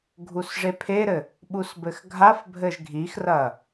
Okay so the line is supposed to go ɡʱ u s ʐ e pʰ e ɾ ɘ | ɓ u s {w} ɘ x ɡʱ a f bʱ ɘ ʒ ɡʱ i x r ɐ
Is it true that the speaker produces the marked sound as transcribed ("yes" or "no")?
no